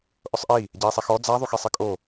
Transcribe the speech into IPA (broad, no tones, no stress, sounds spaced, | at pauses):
ʔ ʊ sˤ ʔ i | ɟ ɛ i̯ sˤ e x ɔ d͡z a ðˤ u x e sˤ ɪ kʼ o